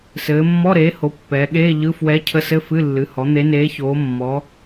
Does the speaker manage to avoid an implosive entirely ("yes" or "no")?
no